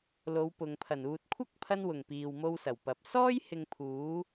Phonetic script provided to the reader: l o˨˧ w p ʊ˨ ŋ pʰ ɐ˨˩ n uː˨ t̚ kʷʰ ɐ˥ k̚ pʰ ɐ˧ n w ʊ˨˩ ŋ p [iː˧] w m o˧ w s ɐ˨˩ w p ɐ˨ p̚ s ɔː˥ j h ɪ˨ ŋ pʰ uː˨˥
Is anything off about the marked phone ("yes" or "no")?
yes